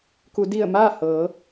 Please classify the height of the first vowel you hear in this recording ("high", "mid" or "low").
high